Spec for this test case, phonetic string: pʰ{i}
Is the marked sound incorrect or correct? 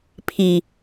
correct